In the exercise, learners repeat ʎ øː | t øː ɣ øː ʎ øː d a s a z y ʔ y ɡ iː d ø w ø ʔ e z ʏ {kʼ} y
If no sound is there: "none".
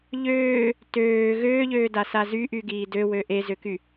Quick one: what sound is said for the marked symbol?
k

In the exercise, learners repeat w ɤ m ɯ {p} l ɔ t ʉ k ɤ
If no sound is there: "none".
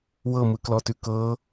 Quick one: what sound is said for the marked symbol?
k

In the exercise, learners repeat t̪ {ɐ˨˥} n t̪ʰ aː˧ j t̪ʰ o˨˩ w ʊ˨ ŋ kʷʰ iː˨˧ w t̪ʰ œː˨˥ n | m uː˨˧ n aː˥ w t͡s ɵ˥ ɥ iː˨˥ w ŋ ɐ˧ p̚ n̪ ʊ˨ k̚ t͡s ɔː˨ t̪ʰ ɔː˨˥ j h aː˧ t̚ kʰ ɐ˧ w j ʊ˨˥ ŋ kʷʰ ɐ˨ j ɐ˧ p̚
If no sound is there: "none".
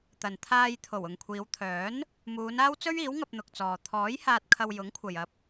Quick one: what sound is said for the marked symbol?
ɐ˨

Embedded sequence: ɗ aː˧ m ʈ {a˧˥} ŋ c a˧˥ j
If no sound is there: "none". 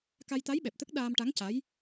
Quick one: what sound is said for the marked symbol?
a˧˥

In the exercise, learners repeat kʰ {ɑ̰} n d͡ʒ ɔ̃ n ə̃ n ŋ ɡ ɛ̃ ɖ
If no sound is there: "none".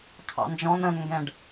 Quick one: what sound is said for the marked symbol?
ɑ̰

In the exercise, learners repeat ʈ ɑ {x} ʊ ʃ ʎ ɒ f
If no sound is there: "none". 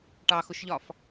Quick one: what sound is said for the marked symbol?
x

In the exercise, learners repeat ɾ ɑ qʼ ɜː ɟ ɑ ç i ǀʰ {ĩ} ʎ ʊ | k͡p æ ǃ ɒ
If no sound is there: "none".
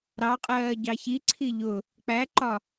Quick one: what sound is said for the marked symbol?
i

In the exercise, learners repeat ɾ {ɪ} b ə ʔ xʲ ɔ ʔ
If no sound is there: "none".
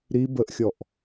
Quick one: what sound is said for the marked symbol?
i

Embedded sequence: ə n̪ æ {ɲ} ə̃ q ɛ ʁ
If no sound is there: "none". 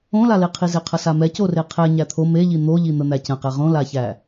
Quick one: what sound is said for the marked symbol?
c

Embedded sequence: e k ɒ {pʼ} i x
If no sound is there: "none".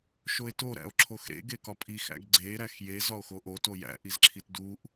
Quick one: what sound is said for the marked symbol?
pʼ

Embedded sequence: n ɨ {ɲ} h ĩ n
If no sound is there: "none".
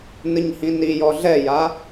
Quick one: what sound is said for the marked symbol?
ɲ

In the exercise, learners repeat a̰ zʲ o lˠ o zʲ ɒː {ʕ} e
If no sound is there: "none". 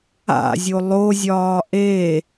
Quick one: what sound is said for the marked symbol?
ʔ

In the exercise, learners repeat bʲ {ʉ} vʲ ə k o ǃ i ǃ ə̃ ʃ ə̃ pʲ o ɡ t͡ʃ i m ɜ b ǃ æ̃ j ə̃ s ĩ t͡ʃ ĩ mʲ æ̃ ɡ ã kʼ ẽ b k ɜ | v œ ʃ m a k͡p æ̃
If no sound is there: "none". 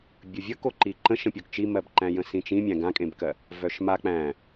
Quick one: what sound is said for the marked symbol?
ɨ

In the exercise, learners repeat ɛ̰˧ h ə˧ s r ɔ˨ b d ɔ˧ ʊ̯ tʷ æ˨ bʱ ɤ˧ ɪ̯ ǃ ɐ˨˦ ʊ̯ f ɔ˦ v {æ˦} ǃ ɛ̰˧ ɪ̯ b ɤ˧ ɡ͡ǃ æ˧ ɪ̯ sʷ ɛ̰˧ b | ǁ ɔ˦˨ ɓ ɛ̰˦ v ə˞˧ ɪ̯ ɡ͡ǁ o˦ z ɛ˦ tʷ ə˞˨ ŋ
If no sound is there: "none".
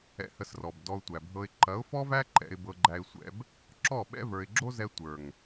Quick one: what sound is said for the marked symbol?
æ˦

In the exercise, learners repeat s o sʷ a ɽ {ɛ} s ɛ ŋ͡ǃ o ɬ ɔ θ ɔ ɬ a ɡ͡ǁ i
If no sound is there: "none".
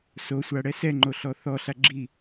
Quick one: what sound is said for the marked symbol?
ɛ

